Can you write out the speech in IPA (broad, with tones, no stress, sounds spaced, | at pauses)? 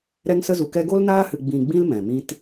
ɾ ɛ˦ ŋ s ə˦ z u˧ k ɛ˦ ɡ o˦ l n aː˦ h ɨ˧ ɡ͡b ĩ˧ ɡ͡b ĩ˦ l m ɛ̃˨ m ĩ˦ t